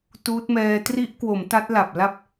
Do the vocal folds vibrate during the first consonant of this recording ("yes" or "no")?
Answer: no